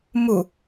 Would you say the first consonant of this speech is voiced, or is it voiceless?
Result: voiced